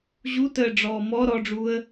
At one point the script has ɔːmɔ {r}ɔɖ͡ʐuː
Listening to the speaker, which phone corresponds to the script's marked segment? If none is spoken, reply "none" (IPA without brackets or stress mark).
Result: ɾ